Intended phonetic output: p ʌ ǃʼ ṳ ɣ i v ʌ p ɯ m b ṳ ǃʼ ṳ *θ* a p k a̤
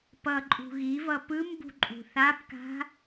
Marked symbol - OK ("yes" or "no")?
yes